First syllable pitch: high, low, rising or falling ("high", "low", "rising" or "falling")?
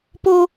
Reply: high